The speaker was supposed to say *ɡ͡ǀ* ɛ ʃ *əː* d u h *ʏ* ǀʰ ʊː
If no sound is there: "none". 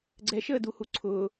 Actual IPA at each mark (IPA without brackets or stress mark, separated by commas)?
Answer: ɡ͡ǀ, əː, u